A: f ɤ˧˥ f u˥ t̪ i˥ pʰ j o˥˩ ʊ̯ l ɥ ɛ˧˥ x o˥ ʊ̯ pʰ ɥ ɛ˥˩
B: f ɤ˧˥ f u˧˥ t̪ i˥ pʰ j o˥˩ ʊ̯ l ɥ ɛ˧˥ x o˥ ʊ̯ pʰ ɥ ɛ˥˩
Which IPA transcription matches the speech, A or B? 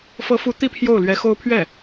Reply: B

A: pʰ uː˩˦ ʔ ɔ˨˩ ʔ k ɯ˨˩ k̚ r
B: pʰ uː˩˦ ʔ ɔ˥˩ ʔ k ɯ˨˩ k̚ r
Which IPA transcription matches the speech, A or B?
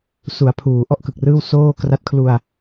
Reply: B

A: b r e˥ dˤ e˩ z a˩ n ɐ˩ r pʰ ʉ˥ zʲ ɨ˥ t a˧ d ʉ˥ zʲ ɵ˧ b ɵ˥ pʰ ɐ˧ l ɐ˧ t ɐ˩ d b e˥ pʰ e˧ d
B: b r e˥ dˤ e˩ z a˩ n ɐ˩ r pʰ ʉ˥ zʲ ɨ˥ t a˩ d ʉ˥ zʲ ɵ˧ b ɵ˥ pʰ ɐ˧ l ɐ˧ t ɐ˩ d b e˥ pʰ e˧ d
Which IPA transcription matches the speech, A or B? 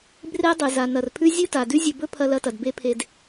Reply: B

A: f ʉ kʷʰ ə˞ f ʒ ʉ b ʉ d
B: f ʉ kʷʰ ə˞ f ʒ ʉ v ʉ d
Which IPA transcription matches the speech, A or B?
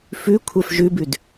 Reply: A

